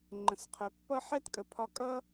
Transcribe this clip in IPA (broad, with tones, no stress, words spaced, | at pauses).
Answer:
ŋ͡ǃə̃˨sqʰœ˨pːʌ˥ ħɛ˥tkʼə˨pʰɒ˦ kʼʌ˥